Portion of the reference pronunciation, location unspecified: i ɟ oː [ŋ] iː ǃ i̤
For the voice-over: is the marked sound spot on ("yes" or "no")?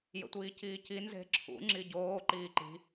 no